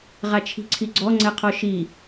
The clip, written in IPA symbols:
ʁat͡ʃʰi̤ǀʰiɡ͡ǀɔ ŋ͡ǀɛqʰɔʃi

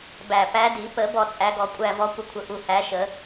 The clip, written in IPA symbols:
bæ˨˩pæ˨˦ di˨˩˦pə˨˩˦ bɔ˦˨t͡sʼæ˨˦ɡɔ˨˦kʷʼæ˦˨ vɔ˨˦kʷə˨˦kʷʰə˨˩ʔu˨˩ hæ˨˦ʃə˨˩˦

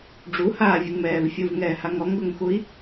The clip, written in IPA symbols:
ɖ͡ʐuhaːvʲuŋmɛːv fʲuvŋɛːhaŋ ɔŋɡʊŋxui̯

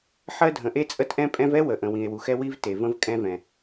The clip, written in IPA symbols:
ħɜ˥dʱə̃˩ʔe˥ t͡sʼə˥tʔɛ̃˥pʼɛ̃˥v ɛ˥wə˩ʔə̃˩ wĩ˩e̯wu˩xɛ˥ wi˥v te˩və̃˥v kʼɛ̃˥vɛ̃˩

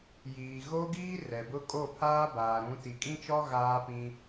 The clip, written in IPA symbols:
jiː˨ɣo˦ɡiː˦ rɛ˨bʊ˦ kʼo˦˨pʰaː˦ baː˨ɾũ˨˦ ti˨kʼĩ˦t͡ʃɔ˦ ɣaː˦pĩ˦

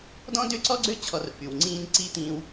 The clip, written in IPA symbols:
dɔ̃˦dø˦ǀɔ˦ɡ͡ǀø˦ t͡ɕʰɔ˧rfy˨w ŋ͡ǀĩː˦n ǀi˦t̪ĩː˧w

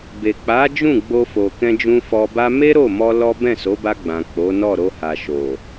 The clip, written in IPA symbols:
be˨k͡pa˨˦d͡ʒũ˦˨ ɡ͡bo˧fo˨kɛ̃˧d͡ʒũ˧ fɔ˧ba˦ me˦ɾo˦˨mɔ˧ lɔ˦ bɛ̃˦˨so˨˦ba˧ɡ͡bã˨ k͡po˨˦nɔ˦˨ɾo˧ ha˨ʃo˨

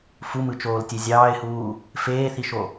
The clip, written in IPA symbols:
fumɯt͡ʃoːltʲe zʲɑːɪ̯huː | feːθiʃo

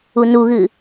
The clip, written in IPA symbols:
unuɣɨ

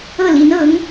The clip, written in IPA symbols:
ɤ˥˩li˧˥n ɤ˧˥ŋ

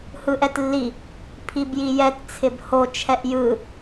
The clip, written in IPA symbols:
hɯʔɛtlːi | pʰibjijɛt t͡sʰɪbho t͡ʃʰɛʔjɯ

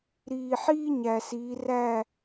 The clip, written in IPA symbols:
ɾiː˨ħiː˥ ɲæ˨siː˨˦ræ˥˨

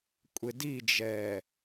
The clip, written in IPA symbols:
kʷʼɪdid͡ʒɛː

